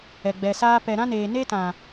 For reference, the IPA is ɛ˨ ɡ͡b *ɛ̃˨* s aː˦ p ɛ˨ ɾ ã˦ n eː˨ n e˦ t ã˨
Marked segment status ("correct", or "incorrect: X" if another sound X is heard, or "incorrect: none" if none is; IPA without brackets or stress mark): incorrect: ɛ˨